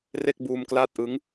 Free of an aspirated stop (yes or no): yes